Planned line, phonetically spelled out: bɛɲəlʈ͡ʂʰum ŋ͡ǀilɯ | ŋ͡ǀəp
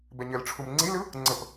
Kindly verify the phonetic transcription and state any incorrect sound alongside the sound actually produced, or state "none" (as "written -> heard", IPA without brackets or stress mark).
none